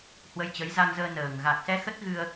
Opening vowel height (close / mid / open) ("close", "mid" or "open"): mid